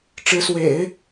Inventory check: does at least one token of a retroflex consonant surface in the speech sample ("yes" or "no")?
yes